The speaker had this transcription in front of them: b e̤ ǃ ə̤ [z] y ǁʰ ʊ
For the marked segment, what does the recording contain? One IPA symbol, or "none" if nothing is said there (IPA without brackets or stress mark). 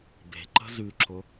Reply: z